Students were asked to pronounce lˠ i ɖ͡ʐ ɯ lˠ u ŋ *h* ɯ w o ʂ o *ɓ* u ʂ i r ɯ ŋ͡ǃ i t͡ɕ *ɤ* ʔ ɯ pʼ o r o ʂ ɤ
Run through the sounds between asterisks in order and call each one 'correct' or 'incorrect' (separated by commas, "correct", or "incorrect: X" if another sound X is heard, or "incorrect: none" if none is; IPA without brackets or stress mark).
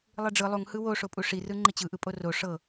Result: correct, incorrect: pʼ, incorrect: ɯ